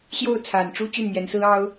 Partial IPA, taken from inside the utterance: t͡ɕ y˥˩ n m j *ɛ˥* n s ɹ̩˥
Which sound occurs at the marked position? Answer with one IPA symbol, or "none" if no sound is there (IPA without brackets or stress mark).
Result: ɛ˧˥